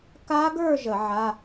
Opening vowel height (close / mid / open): open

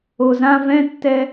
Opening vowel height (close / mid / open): mid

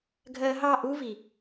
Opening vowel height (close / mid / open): mid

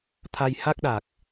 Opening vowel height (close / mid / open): open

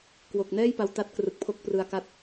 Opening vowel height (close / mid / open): mid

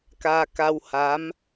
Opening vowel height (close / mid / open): open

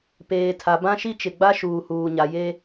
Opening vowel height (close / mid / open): mid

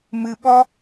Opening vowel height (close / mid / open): close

